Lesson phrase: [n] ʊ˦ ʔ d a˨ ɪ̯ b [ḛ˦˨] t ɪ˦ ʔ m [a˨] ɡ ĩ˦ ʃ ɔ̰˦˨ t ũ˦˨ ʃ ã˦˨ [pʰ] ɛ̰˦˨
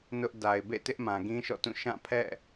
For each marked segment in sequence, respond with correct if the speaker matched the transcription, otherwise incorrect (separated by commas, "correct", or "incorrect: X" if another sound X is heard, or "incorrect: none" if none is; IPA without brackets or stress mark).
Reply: correct, correct, incorrect: ã˨, correct